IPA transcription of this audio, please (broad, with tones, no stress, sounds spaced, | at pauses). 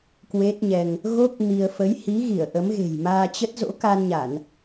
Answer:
k w e˦˥ t̚ ɲ ɛ˧ ŋ | ɣ o˦˥ k̚ m i˧ ə̯ f ə˨˦ j h i˨˦ ɣ i˧˩ ə̯ ʔ ə˨˦ m ɣ e̤˨˩ j m aː˧ t͡ɕ ə˦˥ t̚ z o̰˧˥ k a˧ n ɲ a˧˩˨ n